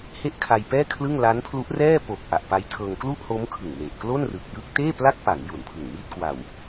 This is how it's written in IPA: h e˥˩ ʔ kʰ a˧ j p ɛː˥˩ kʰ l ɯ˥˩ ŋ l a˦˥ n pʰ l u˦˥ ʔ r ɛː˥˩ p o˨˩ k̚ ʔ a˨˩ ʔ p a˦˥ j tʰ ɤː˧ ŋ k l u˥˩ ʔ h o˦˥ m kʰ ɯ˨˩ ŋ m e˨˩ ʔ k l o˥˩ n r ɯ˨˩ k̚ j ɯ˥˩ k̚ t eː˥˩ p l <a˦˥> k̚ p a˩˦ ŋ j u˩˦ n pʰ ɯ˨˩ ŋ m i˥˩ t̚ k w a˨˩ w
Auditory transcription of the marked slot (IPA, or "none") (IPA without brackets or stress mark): a˥˩